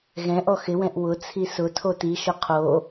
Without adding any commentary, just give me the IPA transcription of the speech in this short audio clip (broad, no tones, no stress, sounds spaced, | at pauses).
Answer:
ɣ ɛ̃ ʔ ɔ x ɪ w ɛ̃ ʔ w ʊ t͡sʰ i s ʊ tʰ o t i ʃ ʊ qʰ o